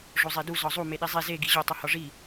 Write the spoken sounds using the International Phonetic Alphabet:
ʐ o zˤ e d u z ɒ zˤ u m e ɗ i zˤ e z e ɡ i ʑ o tˤ u h ɒ ʐ i

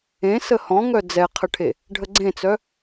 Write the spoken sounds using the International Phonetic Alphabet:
ẽ s ə h ɔ̃ ŋ œ d͡z ɛ qʰ ə ʈʰ e | ɖʱ ə ɡ͡ǀ ẽ t͡s œ

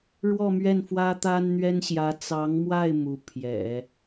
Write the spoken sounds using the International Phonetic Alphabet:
ɻ w ɔ˥˧ m ɥ ɛ˥˩ n f w ä˥ t̪ a˥ n n̪ ɥ ɛ˥ n ɕ j ä˧˥ t͡s ɑ˧˥ ŋ m w a˥˩ ɪ̯ m u˧˥ pʰ j ɛ̰˨˩˦

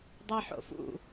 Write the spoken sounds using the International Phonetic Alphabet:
dˤ ɛ ħ o̰ f ṵ

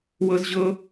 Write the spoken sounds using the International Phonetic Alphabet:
w ɤ˥ z ʑ ɤ˥

